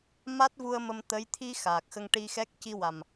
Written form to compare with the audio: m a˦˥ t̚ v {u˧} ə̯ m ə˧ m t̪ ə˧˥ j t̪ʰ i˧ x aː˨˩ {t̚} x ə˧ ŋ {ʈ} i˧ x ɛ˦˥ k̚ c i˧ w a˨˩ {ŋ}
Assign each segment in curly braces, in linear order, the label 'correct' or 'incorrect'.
correct, incorrect, correct, incorrect

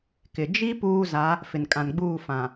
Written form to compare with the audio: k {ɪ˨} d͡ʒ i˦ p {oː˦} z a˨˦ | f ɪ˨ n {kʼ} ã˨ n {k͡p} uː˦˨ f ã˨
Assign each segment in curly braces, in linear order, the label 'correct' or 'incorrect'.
correct, incorrect, correct, incorrect

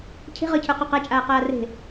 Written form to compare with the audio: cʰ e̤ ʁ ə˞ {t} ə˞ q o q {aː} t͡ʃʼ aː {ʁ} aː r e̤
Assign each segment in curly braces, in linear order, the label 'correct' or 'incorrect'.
incorrect, incorrect, incorrect

